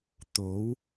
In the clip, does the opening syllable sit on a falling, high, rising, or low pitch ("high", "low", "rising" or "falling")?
rising